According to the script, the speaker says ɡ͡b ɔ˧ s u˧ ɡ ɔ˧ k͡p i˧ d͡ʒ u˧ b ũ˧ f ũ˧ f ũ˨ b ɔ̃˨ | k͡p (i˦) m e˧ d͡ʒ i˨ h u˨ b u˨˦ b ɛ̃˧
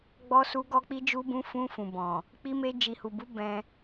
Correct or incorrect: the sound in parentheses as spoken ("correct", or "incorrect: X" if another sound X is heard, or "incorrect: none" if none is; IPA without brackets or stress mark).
incorrect: i˧